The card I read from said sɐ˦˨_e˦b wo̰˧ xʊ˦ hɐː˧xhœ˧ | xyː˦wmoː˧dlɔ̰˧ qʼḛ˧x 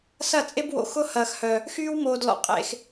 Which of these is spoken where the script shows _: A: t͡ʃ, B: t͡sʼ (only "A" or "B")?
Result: B